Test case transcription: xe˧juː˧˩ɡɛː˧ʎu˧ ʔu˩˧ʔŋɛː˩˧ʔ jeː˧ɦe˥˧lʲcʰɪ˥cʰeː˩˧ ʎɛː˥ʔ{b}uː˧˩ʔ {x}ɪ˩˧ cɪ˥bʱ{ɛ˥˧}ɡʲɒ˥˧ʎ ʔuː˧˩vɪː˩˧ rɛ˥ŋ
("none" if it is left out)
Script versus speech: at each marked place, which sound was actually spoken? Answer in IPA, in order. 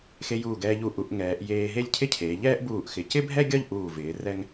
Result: b, x, ɛ˥

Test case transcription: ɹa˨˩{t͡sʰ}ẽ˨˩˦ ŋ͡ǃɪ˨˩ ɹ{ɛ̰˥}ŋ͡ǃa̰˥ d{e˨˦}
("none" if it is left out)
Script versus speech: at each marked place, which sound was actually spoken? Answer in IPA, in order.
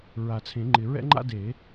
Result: t͡sʰ, ɛ̰˥, e˨˩˦

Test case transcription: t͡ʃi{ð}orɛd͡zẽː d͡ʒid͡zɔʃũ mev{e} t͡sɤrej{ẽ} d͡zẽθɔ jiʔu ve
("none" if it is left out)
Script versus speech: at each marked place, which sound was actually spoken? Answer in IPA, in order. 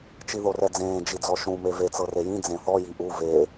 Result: ð, e, ĩ

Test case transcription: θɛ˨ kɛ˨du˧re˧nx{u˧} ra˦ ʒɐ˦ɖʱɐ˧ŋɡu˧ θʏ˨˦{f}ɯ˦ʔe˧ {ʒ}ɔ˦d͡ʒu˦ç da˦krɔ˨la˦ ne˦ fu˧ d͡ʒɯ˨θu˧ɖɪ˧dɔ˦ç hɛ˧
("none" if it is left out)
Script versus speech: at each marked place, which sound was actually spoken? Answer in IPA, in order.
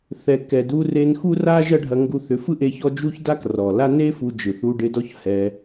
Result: u˦, f, ç

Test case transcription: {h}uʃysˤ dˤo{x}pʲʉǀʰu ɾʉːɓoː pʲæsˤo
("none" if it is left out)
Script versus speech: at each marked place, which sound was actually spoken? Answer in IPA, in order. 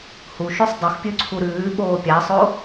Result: h, x

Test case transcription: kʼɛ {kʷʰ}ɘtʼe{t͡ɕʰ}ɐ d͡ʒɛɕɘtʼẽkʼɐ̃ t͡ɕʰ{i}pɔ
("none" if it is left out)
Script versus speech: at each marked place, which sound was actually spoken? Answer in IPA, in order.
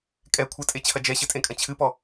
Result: kʷʰ, t͡ɕʰ, ɨ

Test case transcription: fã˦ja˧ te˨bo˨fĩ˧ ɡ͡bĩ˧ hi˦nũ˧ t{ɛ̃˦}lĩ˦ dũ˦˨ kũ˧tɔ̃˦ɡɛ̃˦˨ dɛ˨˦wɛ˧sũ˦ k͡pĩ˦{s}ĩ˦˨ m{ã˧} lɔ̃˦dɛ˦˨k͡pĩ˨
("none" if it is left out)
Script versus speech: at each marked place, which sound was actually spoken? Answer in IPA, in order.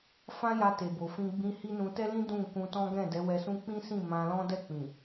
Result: ɛ˦, s, ã˧

